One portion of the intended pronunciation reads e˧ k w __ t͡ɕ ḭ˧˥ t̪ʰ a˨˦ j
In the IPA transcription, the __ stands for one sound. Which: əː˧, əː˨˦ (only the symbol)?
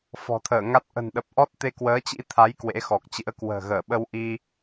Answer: əː˨˦